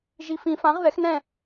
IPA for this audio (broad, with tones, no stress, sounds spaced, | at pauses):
ʒ i˨ f ĩ˨˩˦ f ã˩˥ ʁ ð ɛ˩˥ x n ɛ̃˦˨